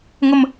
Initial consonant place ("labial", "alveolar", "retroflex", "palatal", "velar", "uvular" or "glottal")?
velar